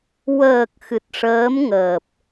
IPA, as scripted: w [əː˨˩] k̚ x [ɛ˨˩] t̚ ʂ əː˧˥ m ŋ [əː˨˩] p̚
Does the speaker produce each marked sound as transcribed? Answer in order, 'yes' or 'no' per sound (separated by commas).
yes, no, yes